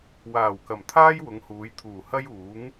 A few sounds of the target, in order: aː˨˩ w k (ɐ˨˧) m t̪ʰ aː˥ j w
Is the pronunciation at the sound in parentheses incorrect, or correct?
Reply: incorrect